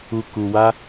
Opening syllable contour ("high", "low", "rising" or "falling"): low